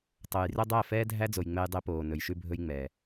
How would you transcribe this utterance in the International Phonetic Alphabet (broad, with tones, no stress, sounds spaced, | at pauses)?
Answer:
tˤ o˨ j r ɵ˦ dˤ æ˦˨ f ɛː˦ dʱ æ˦ d͡z o˨ j ŋ͡m ɛ˦ j dˤ e˦ p oː˨ n ɵ˨ j ʃ ʉ˦ bʱ ɵ˦ j ŋ͡m ɛː˨